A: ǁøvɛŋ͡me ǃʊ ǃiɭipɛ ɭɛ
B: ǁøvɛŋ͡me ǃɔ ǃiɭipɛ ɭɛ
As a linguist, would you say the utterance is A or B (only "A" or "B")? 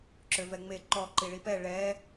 B